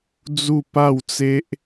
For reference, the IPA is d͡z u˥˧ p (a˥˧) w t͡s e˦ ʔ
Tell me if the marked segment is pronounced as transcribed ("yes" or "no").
yes